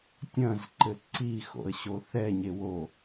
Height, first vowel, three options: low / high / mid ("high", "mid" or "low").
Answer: low